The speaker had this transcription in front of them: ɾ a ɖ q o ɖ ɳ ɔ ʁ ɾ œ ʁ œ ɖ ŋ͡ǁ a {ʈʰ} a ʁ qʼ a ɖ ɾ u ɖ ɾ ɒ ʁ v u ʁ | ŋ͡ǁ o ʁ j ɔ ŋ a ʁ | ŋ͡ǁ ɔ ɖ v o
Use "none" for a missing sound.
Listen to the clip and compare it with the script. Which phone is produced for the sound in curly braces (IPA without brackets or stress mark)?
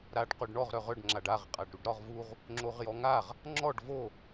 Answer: ɖ